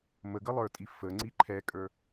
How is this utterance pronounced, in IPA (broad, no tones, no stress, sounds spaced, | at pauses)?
m ə ɡ ə lˠ ə˞ tʼ i f ə ŋ͡ǀ i ǃʰ ɛ kʼ ə˞